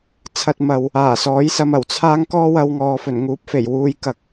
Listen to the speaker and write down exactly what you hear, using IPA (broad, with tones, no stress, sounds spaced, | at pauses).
t͡sʰ ɐ˧ t̚ m ɐ˨ w | aː˨˩ s ɔː˨˥ j s ɐ˧ m ɐ˨˩ w t͡sʰ aː˥ ŋ k ɔː˥ w ɐ˧ w ŋ ɔː˨ f ɵ˨˩ n ŋ uː˨˥ p̚ f e˨˩ j w uː˨ j k ɐ˨ k̚